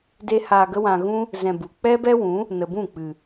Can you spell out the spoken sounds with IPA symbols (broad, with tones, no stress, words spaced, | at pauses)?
de˦haː˧ɡə˦wã˧ ɣũ˦ | zɛ̃˧bu˨ k͡pɛ˦bɛ˦wũ˨˦ | nə˨bũ˦˨k͡pɨ˨